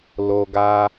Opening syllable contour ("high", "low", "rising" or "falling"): low